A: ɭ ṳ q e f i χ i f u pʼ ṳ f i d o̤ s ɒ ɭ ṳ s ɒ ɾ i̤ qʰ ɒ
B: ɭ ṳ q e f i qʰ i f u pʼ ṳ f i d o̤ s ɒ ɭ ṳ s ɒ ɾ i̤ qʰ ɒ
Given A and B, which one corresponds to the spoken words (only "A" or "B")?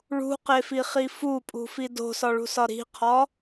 A